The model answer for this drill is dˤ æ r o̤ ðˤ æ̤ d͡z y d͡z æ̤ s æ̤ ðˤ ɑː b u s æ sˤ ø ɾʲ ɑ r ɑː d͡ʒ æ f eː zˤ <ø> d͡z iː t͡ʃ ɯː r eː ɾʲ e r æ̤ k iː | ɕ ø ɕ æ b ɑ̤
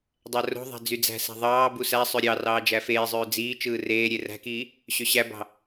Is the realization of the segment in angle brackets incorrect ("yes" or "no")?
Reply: yes